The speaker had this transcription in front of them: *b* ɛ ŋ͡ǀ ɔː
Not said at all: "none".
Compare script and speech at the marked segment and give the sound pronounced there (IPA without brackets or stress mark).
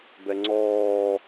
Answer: b